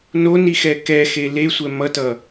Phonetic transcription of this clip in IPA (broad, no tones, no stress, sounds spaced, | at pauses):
n o n i x ɛ k ɛ x e l e sʷ ɛ m ʌ t ʌ